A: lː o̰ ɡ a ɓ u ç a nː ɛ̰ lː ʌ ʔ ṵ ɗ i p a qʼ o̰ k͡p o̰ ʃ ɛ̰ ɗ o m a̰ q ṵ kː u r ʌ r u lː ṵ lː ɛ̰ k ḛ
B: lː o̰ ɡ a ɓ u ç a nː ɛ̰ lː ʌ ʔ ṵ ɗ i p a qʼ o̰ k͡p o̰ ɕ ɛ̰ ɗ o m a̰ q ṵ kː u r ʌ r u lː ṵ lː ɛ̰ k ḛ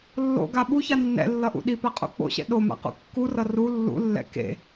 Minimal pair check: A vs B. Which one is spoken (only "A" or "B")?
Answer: B